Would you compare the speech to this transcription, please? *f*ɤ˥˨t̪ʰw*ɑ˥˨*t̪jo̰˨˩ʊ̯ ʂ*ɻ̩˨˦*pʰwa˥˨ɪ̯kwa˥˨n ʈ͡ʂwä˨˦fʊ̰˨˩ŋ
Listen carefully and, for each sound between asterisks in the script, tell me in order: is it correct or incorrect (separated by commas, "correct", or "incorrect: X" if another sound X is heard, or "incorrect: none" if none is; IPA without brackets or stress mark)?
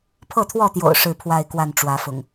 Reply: incorrect: pʰ, incorrect: ɔ˥˨, incorrect: ɻ̩˥˨